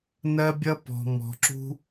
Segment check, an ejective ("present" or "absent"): absent